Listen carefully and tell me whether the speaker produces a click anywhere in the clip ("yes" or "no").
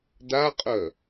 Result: no